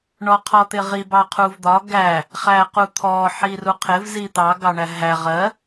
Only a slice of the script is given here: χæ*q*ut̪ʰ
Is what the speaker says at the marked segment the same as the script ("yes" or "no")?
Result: yes